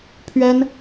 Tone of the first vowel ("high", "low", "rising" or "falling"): high